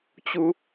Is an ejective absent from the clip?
yes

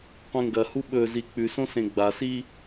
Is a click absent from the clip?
yes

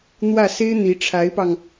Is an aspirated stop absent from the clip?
no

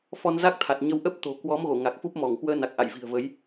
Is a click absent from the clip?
yes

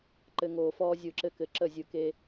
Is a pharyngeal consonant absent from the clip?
yes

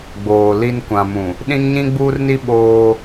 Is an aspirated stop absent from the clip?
yes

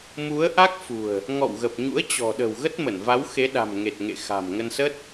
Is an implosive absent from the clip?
no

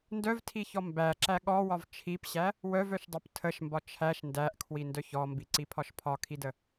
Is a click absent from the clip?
no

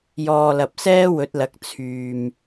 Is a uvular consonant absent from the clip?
yes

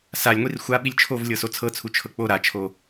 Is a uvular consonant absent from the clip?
yes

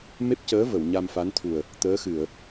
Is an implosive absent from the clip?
yes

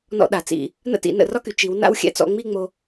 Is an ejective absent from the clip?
yes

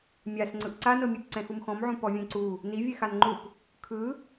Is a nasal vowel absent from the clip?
no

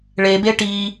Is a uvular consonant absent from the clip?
yes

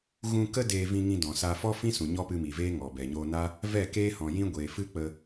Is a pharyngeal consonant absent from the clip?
yes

